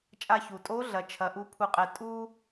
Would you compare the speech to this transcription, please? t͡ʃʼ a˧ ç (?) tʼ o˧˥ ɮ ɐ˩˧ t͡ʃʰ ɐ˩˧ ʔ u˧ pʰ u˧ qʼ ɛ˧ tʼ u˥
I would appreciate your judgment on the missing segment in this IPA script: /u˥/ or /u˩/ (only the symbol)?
u˩